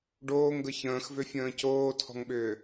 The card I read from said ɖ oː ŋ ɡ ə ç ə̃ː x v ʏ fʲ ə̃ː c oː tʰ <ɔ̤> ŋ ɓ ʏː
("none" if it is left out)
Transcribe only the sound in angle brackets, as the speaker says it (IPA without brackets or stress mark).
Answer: ɔ̤